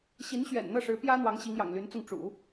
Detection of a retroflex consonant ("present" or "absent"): present